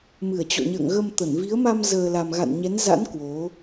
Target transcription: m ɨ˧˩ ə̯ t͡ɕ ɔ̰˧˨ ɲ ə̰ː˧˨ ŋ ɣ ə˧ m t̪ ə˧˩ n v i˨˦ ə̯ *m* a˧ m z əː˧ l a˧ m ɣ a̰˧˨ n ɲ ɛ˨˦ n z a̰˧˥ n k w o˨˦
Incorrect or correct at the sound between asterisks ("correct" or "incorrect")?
correct